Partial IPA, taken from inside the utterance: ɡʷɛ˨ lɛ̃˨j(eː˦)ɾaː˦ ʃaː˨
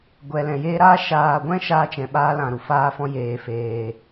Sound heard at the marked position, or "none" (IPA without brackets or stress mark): eː˦